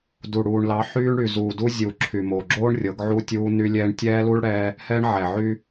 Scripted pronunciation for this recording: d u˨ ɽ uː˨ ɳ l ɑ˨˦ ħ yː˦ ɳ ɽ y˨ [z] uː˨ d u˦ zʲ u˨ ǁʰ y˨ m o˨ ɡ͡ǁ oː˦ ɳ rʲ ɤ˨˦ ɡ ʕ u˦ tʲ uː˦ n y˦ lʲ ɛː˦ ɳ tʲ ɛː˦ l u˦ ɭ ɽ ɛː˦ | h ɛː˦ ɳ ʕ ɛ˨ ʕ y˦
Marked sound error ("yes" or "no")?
no